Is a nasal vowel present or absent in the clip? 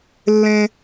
present